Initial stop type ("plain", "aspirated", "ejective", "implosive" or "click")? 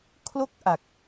aspirated